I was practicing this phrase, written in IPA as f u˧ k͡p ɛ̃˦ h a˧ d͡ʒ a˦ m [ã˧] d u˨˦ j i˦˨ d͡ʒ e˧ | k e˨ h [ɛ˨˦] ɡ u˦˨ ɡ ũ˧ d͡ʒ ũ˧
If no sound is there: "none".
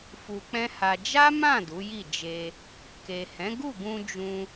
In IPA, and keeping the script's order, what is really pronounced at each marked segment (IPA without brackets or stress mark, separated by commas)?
ã˦˨, ɛ̃˨˦